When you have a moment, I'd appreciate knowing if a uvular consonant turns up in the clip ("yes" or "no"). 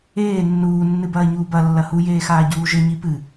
no